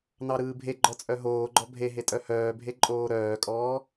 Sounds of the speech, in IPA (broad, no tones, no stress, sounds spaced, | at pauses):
n ɑ ɾ ɯː bʱ e ɡ͡ǃ ɔ t͡sʼ œ ɦ oː ɡ͡ǃ ɔ bʱ e ɦ e tʼ œ h œː bʱ e ǃʼ oː ɾ œː kʼ ɔː